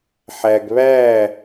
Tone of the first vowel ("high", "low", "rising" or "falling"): low